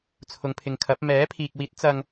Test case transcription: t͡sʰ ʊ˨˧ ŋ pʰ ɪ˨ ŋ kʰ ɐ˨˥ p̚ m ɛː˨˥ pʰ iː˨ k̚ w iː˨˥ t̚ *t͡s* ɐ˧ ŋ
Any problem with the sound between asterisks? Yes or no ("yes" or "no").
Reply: no